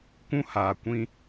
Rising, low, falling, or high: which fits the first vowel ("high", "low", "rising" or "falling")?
high